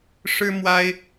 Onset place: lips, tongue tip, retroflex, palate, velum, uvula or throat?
retroflex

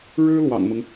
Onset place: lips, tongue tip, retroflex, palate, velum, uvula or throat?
retroflex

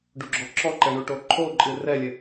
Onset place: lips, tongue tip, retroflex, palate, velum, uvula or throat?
retroflex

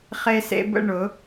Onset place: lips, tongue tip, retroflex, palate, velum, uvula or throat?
uvula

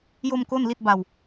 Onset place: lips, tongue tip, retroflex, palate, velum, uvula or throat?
palate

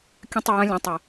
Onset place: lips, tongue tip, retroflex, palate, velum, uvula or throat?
velum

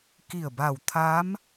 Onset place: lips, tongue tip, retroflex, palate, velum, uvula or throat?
velum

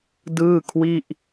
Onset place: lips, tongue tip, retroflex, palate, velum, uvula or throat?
tongue tip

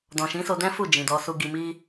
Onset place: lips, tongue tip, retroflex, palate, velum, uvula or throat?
tongue tip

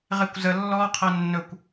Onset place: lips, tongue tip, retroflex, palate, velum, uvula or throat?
uvula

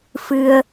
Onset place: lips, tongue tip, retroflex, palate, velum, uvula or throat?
lips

